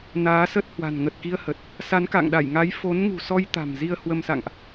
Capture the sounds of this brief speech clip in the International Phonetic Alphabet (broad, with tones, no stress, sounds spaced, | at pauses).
n aː˨˦ s ə˦˥ t̚ h w a̤˨˩ n ŋ ə˨˩ t̚ k i˧ ə̯ h ə˨˩ t̚ | s a˨˦ n k a̰˧˨ ŋ ɗ a˧˩ j ŋ a˨˦ j f o˨˦ n ŋ ṳ˨˩ s ɔ˧ j t̪ a̤˨˩ m z i˧ ə̯ h w ə˧ m s a̰˧˨ ŋ ʔ